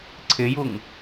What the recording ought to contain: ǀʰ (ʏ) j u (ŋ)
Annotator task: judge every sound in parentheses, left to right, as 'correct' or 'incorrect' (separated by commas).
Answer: incorrect, correct